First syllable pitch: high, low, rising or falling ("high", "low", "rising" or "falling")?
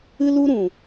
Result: high